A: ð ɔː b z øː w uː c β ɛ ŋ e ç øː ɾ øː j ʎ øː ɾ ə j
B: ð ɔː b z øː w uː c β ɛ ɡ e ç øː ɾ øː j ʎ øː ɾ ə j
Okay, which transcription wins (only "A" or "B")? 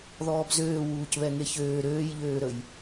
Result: A